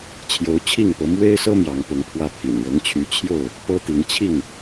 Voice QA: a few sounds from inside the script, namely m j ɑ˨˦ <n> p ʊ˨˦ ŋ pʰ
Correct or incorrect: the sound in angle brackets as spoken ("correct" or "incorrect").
incorrect